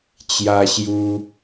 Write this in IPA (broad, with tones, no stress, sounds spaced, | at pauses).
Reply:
t͡ɕ j a˧ ɕ j u˧